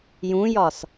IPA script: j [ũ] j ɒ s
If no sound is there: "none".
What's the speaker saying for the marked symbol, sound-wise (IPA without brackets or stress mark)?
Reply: ũ